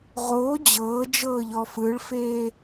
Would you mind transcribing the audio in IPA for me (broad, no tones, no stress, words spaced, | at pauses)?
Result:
ʁoː d͡ʑɤːd͡ʒɤːʎɔ fɯɭfeː